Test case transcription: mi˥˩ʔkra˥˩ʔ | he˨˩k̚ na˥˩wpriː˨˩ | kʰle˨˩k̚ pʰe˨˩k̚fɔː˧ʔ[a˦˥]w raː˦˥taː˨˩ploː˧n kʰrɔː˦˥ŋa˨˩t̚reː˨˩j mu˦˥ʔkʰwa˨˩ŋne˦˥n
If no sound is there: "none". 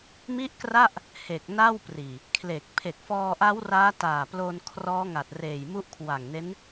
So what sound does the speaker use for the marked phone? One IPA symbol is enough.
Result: a˦˥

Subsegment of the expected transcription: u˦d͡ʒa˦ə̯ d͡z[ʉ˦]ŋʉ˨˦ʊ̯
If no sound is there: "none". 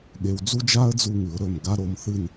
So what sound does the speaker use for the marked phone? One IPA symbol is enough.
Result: u˦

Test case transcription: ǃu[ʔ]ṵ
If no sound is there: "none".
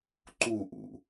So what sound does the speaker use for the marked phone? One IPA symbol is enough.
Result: ʔ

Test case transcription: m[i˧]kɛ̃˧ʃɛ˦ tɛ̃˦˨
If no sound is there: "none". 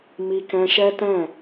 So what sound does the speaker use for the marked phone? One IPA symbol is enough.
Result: i˧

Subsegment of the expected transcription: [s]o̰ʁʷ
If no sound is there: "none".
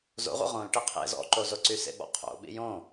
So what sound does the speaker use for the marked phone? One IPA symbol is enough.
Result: z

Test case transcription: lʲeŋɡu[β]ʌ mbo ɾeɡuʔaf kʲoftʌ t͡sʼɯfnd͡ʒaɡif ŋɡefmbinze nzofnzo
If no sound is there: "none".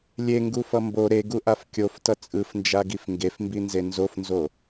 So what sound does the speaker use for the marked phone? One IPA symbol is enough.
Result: f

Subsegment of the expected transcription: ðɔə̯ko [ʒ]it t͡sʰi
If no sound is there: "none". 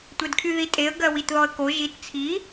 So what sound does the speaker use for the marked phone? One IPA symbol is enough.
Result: ʒ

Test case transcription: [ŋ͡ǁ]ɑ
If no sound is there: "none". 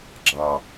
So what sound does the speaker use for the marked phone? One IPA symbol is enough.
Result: ɡ͡ǁ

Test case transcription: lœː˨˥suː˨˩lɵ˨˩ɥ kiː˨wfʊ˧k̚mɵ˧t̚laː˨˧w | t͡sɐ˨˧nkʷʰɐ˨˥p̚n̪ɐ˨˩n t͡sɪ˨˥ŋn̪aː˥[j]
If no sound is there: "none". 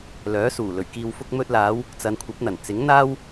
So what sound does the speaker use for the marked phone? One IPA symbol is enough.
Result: w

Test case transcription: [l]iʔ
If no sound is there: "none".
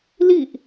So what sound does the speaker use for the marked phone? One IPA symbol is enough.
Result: l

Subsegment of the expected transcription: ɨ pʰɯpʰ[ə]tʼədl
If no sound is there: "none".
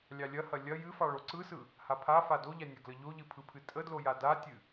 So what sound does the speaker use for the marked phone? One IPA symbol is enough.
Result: ɨ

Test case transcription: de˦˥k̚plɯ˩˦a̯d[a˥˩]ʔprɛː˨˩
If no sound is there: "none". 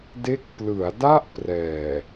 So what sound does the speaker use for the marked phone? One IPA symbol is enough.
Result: a˥˩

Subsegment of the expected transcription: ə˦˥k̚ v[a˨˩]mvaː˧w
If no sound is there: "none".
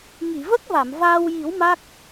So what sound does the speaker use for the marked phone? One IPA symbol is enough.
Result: a˨˩˨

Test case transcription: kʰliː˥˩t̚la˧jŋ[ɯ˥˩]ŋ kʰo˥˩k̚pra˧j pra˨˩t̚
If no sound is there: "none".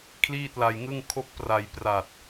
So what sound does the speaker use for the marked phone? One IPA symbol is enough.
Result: ɯ˥˩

